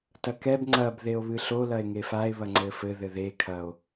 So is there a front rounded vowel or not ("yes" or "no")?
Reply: no